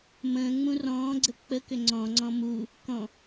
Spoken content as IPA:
m ə̃ː ŋ͡m ũ r ɔ̃ː ɡ͡ǀ ə k͡p ə k ʏ ŋ͡ǀ ɔ̃ ŋ͡ǀ ɔ̃ m u | k ɔ̃

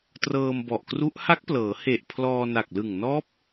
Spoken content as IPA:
t r ɤː˧ m b ɔ˨˩ ʔ k r u˦˥ ʔ h a˦˥ k̚ p l ɤː˩˦ h e˨˩ ʔ pʰ l ɔː˧ n a˨˩ k̚ l ɯ˨˩ ŋ n ɔː˦˥ p̚

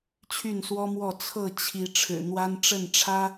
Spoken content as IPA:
t͡ɕʰ y˥˨ n s w ɔ˦ m w ɔ˥˨ t͡sʰ ɤ˥˨ t͡ɕʰ i˨˦ ʈ͡ʂʰ ɻ̩˨˩ n̪ w a˦ n ʈ͡ʂ ə˥˨ n ʈ͡ʂʰ ä˦

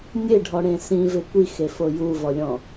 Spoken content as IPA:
nʲ e ɖʱ ɔ ɽ ẽ s ĩ v ɪ kʷ i x e f o j u v ɔ lʲ ɔ̃

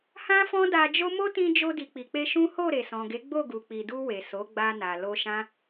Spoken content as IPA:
h ã˦ f ɔ̃˦ d a˧ d͡ʒ o˦ m o˦ t ĩ˧ d͡ʒ o˧ d i˨ k͡p i˨ k͡p e˧ ʃ ũ˦ h o˦˨ ɾ e˨ s ɔ̃˨ ɡ e˨˦ ɡ͡b o˦˨ ɡ u˨ k͡p i˨ d u˧ w e˨ s o˨˦ ɡ͡b a˧ n a˨ l o˧ ʃ ã˦

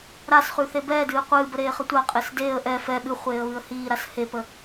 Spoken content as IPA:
ɾ a s χ ʉ θ e b ɛː d ɨː qʷ ɨː b ə ɾ eː χ ə tʷ a qʼ e s d eː ə̯ ʔ ɛ f ɛ ɓ ɨ χʷ eː ə̯ β ɨ ə̯ h iː ɾ a s h e p ə

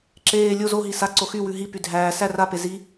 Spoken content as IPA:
ǁ eː lʲ o z o ɦ i s a ǀ o x y w ʉ ɦ i p y dʱ æː s æ r a p e z i

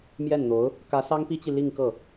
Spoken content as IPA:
m j ɛ˥˩ n n̪ o˧˥ ʊ̯ | k ä˧˥ s ɑ˥ ŋ p i˥ t͡ɕ i˨ l i˥˧ ŋ k ɤ˥˩

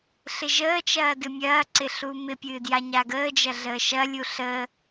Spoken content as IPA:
ɬ ɪ ʒ əː t͡ʃ ɐː d ɨ mʲ ɐː ǀ ɪ ɬ uː m ɪ pʲ ɨː d j a ɲ a ɡ əː d͡ʒ ɐ ɮ əː ʃ ɐ lʲ u ɬ ə

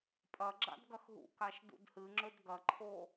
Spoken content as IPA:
pʼ ɐ ɡ͡ǁ a̰ d ɡ ɐ x ɦ ṵ k a ʃ d ṵ d h ɨ ŋ͡ǁ ɵ d ɡ ɐ ǃʰ o

